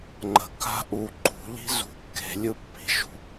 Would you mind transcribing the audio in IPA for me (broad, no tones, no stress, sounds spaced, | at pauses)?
ŋ͡ǃ ə̤ k a̤ ʔ u ǃ ṳ ʎ i̤ z ṳ kː e̤ lʲ ɯ pː i̤ ʃ ṳ